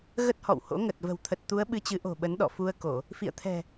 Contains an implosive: yes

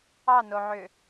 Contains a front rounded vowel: yes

